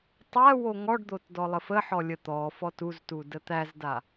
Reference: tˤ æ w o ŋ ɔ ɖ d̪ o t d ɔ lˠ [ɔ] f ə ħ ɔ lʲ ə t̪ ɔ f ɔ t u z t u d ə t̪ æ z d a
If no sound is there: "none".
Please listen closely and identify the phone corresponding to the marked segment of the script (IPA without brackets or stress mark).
ə